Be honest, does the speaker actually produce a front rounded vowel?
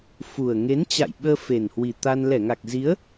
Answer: no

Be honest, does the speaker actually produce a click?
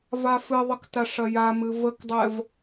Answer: no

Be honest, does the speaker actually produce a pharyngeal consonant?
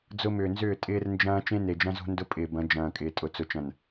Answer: no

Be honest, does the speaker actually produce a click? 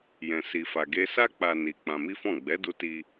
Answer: no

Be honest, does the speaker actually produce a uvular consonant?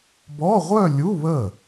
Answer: yes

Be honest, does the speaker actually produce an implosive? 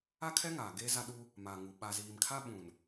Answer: yes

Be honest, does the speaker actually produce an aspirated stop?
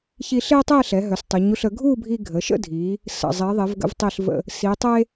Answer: no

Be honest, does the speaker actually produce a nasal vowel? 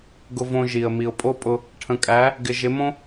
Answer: yes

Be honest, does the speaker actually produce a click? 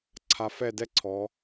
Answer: yes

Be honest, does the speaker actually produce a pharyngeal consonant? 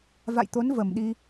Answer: no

